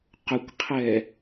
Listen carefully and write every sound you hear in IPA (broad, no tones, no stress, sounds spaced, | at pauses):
q ʊ kʷ qʰ ɛ